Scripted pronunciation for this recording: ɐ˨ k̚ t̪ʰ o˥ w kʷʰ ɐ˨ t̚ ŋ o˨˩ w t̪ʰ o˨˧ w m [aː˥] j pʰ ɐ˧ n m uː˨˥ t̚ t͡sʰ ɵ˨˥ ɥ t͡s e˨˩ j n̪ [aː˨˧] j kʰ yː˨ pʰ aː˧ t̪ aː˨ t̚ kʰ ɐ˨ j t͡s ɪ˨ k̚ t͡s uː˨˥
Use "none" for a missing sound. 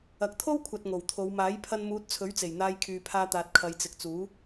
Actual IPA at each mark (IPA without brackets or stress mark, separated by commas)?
aː˨˥, aː˧